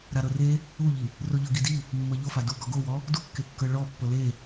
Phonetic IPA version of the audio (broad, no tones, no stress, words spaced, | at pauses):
ɾaɾɤre | uʎi | roʎɤɡidi | mːɤʎofa du ɡɔɡowɔ | dukːekːɤ ɭɔ pːɤle